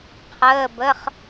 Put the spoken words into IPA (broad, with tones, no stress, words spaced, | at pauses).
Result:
qʰəː˧˥˧bə˧˥˧χ